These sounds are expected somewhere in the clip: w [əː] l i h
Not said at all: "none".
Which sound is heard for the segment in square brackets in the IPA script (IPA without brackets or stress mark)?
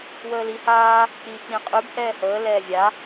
əː